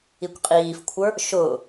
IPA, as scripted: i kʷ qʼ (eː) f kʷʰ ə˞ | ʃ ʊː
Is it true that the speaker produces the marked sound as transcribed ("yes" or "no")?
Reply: no